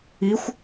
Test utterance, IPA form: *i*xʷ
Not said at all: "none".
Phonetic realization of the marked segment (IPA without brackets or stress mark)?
i